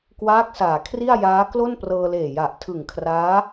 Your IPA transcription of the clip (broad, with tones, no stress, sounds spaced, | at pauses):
k w aː˦˥ k̚ s aː˩˦ kʰ r i˥˩ a̯ j aː˦˥ k l o˥˩ n p r ɤː˧ l eː˨˩ j a˨˩ ʔ tʰ ɯ˨˩ ŋ kʰ r aː˦˥